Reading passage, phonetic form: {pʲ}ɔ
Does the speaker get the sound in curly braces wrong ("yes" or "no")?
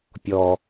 no